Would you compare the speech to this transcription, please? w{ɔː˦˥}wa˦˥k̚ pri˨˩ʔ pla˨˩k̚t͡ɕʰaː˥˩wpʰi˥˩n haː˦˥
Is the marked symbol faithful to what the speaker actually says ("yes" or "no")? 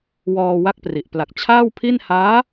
no